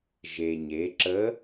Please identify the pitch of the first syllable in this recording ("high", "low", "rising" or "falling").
low